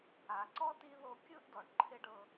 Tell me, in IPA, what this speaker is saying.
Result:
a˨ ǀ ɔ˥ t i˦ ð o˦ kʲ ɯ˥ ʔ d ɔ˨ ɖ ǃʰ e˥ ɖ ɤ˦

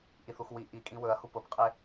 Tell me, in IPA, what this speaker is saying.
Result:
ʔ i θ u x w i ʔ i kʼ ĩ w ɵ ɐ̯ h u p ʊ p qʼ e

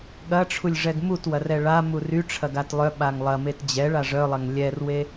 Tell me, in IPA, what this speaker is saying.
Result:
ɠ ɐ ʈ͡ʂʰ u lʲ ʐ ɛ ɡ m u t w ɐ r ɛ ɭ a m u r y ʈ͡ʂʰ ɐ ɡ a t lˠ œ ɓ a ŋ lˠ ɐ m e t d͡ʑ ɛ ɭ a ʐ œ lˠ ɐ ŋ lʲ ɛ r w e

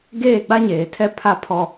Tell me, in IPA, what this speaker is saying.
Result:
ɡ eː˦˨ ɡ͡b a˦ ɲ eː˨ tʰ ɛ˦ pʰ a˦ pʰ ɔ˦

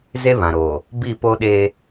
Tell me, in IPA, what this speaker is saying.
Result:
z e˦ β ã˨ ɾ oː˨ | b i˦˨ p o˦ ɗ eː˦

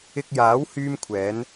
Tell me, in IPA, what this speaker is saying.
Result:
ɪ˧ k̚ j aː˨˥ w h yː˥ m kʷʰ ɛː˨˥ n

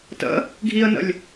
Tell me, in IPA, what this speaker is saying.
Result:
t ə̰ | ɡʱ i ə̯ n ə̰ lʲ

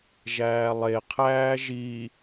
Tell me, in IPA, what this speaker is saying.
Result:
ʒ æː lˠ e qʰ æː ʒ i

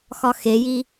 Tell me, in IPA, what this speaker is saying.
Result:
x ɒ x e j i

